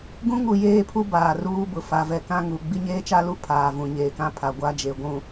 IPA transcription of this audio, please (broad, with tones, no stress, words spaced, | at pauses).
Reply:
ɡũ˦ŋu˨jeː˦˨pʰu˦ baː˨ruː˦bʊ˨ fa˨vɛ˨kã˦ ŋu˨ ɡ͡bi˦ɲeː˦t͡ʃa˦lu˦ pʰaː˨ vũ˨ɲeː˨kã˦ pʰa˨ɡʷa˦d͡ʒe˨ ɡʷũ˨